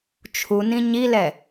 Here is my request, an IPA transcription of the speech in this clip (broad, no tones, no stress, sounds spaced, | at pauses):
t͡ʃʰ u n ĩ ɲ i l ɛ